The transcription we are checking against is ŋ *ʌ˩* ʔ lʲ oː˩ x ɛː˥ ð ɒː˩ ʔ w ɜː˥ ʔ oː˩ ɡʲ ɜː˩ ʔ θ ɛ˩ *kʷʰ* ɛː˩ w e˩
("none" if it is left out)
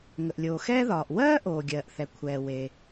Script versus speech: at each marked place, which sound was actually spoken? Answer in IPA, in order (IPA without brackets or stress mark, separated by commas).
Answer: ə˩, kʷʰ